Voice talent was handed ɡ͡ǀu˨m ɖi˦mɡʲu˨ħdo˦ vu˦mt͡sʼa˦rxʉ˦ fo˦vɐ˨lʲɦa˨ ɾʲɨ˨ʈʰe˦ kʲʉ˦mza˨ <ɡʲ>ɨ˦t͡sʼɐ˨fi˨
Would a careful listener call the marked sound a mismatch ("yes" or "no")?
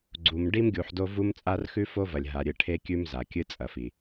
yes